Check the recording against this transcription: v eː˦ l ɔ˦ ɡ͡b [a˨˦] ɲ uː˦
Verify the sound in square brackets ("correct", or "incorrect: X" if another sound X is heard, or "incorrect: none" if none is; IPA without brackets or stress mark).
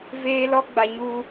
incorrect: a˦